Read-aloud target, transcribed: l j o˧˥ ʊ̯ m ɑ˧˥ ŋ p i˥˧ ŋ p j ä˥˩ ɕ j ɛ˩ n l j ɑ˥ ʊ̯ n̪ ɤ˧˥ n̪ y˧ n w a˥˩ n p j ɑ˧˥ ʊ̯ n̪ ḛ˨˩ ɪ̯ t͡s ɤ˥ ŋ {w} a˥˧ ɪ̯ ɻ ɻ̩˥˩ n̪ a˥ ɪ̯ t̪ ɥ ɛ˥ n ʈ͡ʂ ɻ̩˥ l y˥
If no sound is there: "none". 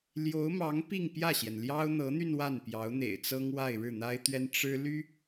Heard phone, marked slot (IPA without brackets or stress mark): w